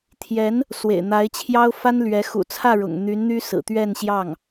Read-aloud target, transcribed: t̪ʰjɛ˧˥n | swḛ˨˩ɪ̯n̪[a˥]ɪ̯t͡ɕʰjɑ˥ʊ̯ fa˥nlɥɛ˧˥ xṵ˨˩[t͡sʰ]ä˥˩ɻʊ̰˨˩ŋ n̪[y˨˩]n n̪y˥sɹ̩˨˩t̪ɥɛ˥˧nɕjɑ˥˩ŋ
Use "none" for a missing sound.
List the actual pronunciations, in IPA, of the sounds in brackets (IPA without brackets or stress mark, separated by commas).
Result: a˧˥, t͡sʰ, y˧˥